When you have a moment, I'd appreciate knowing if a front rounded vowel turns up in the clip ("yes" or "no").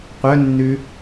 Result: yes